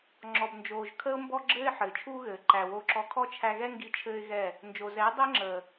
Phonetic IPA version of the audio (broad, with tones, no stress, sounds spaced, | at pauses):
ŋ͡ǁ ɔ˨ b n d͡ʒ oː˨ ʒ kʰ əː˧ ʊ̯ m b ɔ˧ ɡ͡ǁ ɘː˧ ɪ̯ ħ ɘː˨ t͡ʃʰ uː˦ ɣ ɘː˨ ǃ æ˨ w o˧ ǁ ɔ˧ kʰ ɔ˦ t͡ʃʰ æ˧ ɣ ɛ˦ ŋ ɡ i˧ t͡ʃʰ ɘː˦ ɪ̯ ɣ ɛ˦˨ | n d͡ʒ o˨ z ɛː˨˦ dˤ əː˦ ŋ͡ǁ əː˨